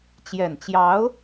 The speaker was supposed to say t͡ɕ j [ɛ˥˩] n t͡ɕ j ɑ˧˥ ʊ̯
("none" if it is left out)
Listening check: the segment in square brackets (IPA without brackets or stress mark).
ɛ˨˩